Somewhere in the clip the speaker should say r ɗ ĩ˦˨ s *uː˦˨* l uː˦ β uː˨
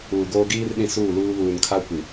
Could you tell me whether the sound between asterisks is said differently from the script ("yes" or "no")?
no